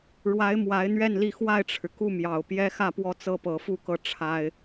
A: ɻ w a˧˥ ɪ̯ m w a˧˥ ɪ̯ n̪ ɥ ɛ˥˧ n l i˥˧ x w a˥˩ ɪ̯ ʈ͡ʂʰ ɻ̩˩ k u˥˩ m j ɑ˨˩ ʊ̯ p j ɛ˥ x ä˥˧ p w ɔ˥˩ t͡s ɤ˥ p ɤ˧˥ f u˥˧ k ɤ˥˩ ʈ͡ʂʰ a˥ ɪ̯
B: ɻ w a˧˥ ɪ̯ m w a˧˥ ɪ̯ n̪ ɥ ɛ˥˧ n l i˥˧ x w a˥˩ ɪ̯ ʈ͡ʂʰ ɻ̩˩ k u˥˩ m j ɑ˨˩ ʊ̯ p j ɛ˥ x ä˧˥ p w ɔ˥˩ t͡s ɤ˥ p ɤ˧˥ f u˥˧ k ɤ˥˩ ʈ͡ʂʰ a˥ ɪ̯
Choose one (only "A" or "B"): A